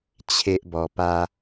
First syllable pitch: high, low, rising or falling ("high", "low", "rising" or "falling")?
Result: high